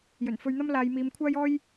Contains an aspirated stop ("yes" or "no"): yes